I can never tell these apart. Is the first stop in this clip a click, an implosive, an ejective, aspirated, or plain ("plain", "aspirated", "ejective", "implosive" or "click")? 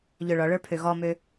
aspirated